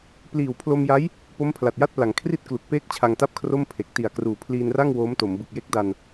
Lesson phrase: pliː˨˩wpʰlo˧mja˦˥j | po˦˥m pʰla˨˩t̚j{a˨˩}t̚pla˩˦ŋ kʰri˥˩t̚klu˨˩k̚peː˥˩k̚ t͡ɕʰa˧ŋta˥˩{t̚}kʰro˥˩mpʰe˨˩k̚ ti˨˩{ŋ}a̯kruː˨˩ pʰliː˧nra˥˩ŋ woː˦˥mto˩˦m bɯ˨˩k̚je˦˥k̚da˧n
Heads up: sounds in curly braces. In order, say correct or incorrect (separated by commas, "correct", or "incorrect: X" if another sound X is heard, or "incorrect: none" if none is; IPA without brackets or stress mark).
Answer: incorrect: a˥˩, incorrect: p̚, incorrect: none